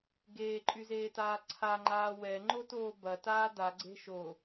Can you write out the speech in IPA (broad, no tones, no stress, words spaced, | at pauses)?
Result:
ɡeːǃʼyzeːtaː ǀʰaŋ͡ǃaː wɛŋ͡ǃotoː bɐtaː daɡ͡ǀe̤ ʃo